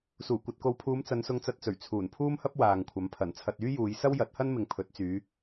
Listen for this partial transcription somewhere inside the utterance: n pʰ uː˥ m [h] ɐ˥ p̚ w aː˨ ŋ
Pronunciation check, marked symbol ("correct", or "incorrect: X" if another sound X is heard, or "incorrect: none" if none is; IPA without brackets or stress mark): correct